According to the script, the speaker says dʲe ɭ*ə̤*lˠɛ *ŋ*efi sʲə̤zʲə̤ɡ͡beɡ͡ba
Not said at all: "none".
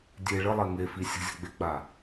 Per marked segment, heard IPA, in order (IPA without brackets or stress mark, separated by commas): ə, ŋ